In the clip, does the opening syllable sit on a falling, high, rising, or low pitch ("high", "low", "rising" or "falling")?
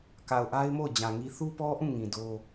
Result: low